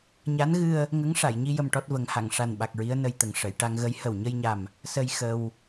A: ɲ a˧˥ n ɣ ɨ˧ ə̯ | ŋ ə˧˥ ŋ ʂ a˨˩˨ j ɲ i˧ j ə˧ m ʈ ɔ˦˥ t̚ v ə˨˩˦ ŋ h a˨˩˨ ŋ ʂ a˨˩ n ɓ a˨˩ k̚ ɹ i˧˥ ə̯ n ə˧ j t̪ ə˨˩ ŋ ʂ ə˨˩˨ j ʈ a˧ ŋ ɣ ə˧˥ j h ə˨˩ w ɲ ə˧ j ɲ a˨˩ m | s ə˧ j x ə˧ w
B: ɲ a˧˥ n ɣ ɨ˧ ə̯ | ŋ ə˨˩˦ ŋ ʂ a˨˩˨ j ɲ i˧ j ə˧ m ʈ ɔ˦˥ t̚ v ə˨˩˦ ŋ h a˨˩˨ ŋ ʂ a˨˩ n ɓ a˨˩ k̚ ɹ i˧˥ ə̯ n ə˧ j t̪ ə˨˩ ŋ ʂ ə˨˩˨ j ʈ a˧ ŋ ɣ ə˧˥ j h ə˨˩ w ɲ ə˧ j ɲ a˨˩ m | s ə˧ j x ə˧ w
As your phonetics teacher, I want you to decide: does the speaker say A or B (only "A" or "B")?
A